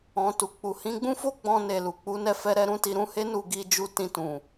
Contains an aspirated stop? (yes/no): no